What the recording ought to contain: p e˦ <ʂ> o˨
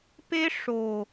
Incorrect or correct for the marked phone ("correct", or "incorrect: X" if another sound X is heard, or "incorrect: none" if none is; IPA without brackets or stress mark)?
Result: correct